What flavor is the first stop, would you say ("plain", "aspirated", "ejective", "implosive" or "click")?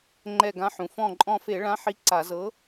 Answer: click